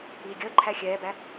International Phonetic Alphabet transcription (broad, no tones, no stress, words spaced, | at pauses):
iːɡʲəːǃʰæ xʲɛːbæ